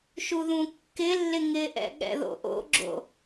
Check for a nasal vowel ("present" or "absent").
present